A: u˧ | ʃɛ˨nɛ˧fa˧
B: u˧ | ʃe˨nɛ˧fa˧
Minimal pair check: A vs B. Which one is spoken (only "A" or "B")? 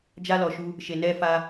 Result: B